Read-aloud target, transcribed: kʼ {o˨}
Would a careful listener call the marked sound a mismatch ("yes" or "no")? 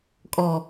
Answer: yes